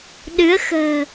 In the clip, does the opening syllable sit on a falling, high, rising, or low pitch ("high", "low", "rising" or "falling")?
rising